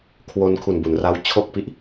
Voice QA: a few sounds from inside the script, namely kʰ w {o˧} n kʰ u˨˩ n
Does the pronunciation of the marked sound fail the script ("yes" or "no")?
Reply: no